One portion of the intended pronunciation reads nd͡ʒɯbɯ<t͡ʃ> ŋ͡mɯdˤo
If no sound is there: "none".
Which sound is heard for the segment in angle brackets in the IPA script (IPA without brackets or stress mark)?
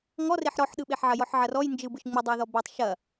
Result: ʃ